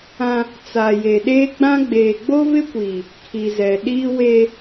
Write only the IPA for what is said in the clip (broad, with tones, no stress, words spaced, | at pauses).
ã˦ | t͡sa˨je˨ ɗeː˦ɡ͡bã˦ ɡ͡beː˨ɡ͡bo˦vɪ˦kʷiː˨ | kʰi˨zɛ˨ ɗiː˦we˦